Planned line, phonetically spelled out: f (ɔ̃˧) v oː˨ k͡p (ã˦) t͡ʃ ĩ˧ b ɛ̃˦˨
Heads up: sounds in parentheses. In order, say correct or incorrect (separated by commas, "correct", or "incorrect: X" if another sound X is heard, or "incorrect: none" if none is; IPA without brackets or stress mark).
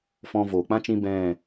correct, correct